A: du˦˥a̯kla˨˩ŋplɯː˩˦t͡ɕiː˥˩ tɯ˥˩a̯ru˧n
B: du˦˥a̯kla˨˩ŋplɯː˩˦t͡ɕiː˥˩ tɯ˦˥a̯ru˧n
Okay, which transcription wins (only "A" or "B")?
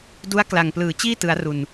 B